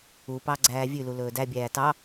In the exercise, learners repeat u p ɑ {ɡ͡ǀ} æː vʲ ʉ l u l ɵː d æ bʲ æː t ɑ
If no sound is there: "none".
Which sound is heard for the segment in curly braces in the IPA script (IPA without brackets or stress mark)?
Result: ɡ͡ǀ